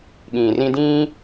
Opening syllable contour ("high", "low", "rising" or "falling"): low